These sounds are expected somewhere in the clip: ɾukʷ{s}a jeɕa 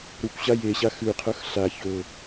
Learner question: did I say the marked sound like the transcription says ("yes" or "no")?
no